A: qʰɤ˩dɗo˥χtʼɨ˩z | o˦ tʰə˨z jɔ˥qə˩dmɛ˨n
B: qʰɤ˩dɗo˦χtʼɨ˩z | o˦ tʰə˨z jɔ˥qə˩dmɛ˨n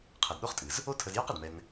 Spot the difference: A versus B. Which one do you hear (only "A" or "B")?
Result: B